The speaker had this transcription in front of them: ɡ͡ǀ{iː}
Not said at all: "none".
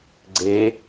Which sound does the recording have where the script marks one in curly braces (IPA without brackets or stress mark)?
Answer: eː